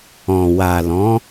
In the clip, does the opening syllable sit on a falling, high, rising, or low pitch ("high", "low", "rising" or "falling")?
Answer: low